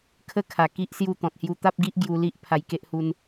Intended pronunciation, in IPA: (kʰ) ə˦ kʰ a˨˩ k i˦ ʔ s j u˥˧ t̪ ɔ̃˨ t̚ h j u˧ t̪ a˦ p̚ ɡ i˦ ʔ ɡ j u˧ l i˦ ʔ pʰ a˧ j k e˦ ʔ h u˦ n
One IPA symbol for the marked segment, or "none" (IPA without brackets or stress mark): kʰ